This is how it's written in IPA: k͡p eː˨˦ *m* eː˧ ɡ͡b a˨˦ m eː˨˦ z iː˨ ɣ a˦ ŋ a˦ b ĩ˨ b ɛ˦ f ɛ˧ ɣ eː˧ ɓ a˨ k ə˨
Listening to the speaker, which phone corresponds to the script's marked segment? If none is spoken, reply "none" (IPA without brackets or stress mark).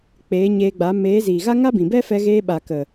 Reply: ɲ